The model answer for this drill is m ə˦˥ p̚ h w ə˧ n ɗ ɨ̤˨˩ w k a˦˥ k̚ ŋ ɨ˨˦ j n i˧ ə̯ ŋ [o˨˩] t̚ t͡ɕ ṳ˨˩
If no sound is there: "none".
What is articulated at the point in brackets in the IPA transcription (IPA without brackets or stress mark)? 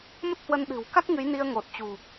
o˨˩